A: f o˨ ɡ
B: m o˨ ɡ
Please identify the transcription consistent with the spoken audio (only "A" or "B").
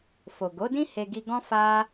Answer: A